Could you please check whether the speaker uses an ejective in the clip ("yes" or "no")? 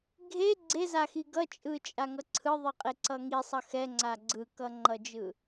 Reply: yes